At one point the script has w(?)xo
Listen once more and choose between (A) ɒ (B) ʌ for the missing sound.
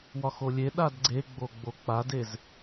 A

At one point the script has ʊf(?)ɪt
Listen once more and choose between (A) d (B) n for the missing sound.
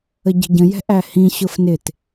B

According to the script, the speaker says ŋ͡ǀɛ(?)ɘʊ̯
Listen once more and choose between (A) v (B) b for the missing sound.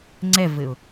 A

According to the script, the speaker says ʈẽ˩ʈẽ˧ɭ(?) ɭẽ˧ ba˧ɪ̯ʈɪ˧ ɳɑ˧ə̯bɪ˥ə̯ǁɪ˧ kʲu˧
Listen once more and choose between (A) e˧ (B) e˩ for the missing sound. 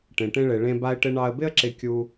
B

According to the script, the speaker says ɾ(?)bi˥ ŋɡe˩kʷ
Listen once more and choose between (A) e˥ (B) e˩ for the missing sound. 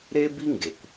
A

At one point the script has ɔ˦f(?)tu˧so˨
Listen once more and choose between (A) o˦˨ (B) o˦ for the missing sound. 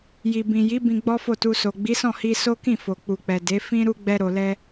A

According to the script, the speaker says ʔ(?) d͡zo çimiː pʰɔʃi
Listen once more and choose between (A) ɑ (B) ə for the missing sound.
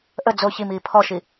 B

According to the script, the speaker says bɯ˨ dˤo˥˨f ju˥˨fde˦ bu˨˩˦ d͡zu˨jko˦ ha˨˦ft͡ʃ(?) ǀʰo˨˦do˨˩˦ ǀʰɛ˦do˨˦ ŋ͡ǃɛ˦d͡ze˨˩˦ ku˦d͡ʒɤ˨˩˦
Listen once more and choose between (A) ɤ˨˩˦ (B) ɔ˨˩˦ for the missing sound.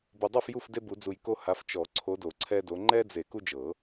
B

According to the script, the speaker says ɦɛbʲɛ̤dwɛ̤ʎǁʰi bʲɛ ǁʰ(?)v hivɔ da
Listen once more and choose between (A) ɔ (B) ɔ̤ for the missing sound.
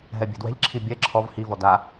A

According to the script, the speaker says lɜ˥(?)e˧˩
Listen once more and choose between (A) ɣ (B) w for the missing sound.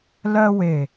B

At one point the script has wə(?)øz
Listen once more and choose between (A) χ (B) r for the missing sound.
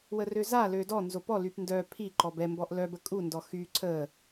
B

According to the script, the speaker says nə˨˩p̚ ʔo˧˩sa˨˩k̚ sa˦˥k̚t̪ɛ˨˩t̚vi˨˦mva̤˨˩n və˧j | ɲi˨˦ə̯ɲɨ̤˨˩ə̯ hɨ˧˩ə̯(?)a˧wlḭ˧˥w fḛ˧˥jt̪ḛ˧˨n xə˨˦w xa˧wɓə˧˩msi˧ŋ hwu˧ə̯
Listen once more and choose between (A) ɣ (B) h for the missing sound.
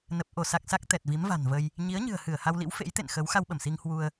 B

